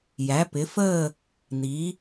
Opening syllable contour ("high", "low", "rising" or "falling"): rising